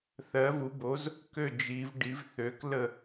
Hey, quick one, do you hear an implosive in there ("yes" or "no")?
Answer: no